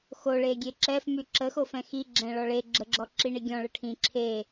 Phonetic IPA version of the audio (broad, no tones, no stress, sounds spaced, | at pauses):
x o ɭ e ɡʲ e ǁ ɛ f m y ǁ ə x o f ɛ̃ x i ɡ͡ǁ ɛ̃ ɭ ɔ ɭ e ɡ͡ǁ ə ɡ͡ǁ ɔ ǁ i ɳ i ɡʲ ɔ̃ ɭ ə ʈʰ ĩ ǁʰ e